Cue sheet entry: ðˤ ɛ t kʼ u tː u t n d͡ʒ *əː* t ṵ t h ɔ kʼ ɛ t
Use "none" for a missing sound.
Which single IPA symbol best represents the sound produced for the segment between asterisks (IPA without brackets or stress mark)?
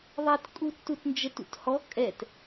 ə